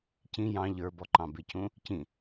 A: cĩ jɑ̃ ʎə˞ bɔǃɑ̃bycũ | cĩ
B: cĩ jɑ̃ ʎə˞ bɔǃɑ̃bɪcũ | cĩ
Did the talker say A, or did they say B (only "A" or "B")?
B